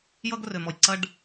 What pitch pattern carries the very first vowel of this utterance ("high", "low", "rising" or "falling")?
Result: high